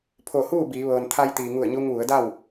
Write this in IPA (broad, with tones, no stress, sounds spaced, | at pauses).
pʰ o˧˩ h uː˥˨ b iː˩˧ ʋ ɤː˩ n t̪ʰ a˧ j t̪ iː˩ ŋ u˧˩ ə̯ ɲ u˧ ŋ ʋ u˩˧ ə̯ d a˥˨ w